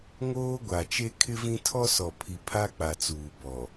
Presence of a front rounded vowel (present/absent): absent